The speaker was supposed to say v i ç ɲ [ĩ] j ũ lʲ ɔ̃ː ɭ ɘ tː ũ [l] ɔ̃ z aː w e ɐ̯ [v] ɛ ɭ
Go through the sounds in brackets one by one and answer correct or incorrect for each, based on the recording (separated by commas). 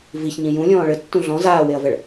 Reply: correct, incorrect, correct